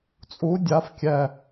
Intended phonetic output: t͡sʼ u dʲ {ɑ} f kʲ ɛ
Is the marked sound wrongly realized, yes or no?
yes